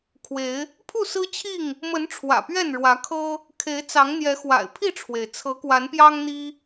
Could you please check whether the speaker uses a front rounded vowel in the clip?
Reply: no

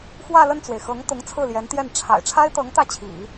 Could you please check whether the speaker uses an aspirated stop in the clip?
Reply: yes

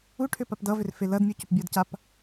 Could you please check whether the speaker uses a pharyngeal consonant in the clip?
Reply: no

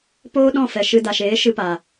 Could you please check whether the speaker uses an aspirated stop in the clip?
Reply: no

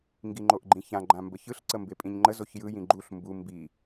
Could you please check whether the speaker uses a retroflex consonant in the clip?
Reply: no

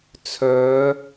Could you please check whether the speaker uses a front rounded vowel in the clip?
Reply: yes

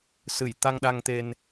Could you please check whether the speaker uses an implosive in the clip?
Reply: yes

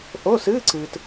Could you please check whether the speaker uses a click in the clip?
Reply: yes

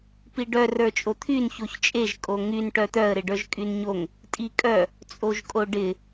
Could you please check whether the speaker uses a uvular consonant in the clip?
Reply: no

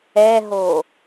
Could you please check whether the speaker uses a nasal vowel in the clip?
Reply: no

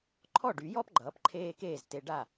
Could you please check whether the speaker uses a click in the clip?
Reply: yes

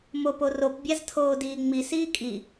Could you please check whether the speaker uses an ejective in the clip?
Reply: yes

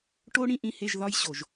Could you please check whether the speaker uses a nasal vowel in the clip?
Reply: yes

